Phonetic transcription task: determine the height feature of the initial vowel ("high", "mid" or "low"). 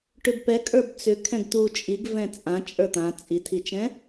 high